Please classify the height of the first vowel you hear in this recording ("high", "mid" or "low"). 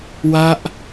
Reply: low